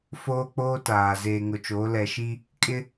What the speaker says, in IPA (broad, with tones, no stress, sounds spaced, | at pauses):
f oː˦ k͡p oː˦ t aː˨ z eː˨ ŋ ʊ˨ t͡ʃ oː˨˦ l ɛ˨ ʃ i˦ | kʼ ɪ˦